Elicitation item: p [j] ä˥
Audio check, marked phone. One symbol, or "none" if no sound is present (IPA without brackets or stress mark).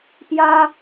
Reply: j